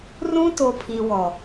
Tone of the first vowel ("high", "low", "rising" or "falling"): high